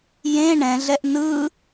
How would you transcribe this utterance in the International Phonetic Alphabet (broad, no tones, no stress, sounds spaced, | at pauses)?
j ẽ ɳ ɛ̃ ɮ ɛ ʔ n ɯ